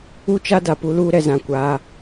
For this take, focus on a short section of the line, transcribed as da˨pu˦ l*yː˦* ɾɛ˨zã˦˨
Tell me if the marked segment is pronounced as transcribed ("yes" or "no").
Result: no